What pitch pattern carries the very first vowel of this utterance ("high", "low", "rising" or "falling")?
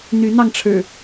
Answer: rising